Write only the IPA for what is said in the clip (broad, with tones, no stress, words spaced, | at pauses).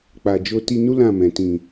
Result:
k͡pa˨ d͡ʒo˧ti˧nu˦ lã˦˨mɛ̃˨tĩ˨